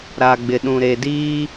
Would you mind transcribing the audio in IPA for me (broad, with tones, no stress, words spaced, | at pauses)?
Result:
ɾa˨ɡ͡bɪ˨ɗũ˨ ɾe˨diː˦